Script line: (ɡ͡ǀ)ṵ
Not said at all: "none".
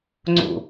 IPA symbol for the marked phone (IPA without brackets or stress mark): ŋ͡ǀ